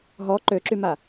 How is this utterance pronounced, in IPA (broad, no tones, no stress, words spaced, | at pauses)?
ɦɔ ǃøǁyma